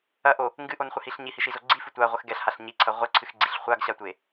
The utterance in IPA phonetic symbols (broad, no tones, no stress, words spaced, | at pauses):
ɐʔo | ŋɡɨʔonχʷɨhiɬ ɲihiʃizo ɡ͡ǀifɨ tʷaʁʷɘx ɡɛɬhaɬ ɲiǀʰɐ ʁʷɘǀʰɨxɡ͡ǀiɬ χʷaɡɕatʷe